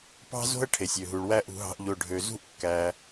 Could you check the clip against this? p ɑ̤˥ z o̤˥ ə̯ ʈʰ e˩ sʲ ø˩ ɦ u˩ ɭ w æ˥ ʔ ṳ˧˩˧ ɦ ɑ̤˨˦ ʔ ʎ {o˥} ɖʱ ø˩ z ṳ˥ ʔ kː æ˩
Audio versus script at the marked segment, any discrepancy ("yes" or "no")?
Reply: yes